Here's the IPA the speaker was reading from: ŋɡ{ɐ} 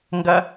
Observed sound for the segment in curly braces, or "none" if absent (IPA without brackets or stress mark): ɐ